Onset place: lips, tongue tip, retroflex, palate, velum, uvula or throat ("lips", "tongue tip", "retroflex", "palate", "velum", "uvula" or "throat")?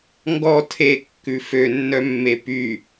velum